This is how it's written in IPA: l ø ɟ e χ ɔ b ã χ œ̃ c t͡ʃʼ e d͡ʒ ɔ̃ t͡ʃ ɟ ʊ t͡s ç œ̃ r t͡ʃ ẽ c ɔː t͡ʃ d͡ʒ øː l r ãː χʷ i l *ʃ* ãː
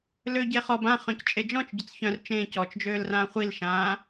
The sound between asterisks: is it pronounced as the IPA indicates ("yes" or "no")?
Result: yes